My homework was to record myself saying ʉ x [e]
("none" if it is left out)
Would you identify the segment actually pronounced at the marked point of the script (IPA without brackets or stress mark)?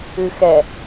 ɛ